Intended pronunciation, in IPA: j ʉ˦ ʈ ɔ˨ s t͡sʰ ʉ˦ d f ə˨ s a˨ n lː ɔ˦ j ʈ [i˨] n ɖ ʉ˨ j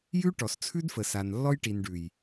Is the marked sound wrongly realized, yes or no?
no